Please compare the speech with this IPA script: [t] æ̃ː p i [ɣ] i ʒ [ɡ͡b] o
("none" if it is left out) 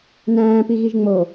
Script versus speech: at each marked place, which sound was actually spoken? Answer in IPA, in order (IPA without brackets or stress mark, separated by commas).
n, ɣ, ŋ͡m